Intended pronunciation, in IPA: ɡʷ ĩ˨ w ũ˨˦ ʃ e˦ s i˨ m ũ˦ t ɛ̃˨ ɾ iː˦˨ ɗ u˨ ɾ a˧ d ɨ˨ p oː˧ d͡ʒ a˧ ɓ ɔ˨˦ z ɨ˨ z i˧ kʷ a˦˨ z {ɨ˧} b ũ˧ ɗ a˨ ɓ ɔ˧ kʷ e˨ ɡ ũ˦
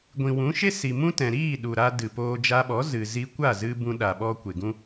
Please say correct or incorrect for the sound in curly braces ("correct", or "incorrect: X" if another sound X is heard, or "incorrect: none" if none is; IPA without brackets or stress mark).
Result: correct